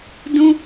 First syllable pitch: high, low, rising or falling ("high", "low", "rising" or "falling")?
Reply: high